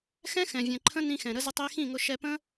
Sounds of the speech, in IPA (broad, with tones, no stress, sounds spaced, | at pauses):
x ɛ̃˦ x ɛ̃˨ vʲ ɛ̃˨ ǃʰ ə̃˦ n ĩ˧ x ɛ̃˨ ɾ ə˧ z ə˧ tˤ i˧ x ĩ˦˨ ŋ ʊ˧ ʃ ɛ˧ p ə̃˦